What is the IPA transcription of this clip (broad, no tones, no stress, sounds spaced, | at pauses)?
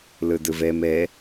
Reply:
l ɨ d ɨ v e m e